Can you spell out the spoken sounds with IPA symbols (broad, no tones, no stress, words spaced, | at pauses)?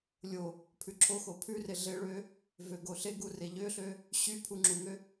lʲo | pʰʉǁʰoxo pʰʉre ɮeɭø | vøɡoɬeɡu reʎøɬø | ɕy pʰuŋ͡ǁuŋø